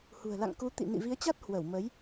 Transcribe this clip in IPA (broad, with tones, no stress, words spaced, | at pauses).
hṳ˨˩ə̯la̰˧˨ŋku˨˦ t̪ḭ˧˨ nḭ˧˨vi˨˦ə̯t͡ɕa˦˥t̚ hwə˧˩w mə˨˦j